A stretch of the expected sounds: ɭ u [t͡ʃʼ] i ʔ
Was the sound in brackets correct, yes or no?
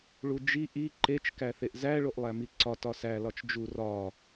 no